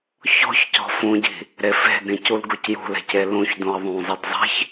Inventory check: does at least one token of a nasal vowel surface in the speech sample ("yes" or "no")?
yes